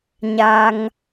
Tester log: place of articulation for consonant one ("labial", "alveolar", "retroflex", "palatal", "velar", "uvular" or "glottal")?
palatal